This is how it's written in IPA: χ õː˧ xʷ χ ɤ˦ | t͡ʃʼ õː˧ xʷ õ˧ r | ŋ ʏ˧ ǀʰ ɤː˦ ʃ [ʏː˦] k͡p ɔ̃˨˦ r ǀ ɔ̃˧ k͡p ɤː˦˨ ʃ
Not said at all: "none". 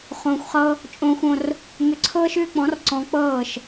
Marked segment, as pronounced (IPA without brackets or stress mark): ʏː˦